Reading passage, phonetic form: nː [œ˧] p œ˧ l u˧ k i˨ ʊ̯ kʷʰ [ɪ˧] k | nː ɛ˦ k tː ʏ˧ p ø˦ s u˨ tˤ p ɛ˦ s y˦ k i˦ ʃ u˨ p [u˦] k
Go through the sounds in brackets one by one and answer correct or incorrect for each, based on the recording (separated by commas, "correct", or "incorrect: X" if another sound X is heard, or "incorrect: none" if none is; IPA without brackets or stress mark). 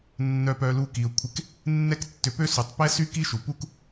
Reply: correct, correct, correct